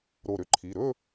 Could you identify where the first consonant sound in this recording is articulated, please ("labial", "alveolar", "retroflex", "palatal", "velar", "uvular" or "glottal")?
alveolar